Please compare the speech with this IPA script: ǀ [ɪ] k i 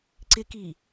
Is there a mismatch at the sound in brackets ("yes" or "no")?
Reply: no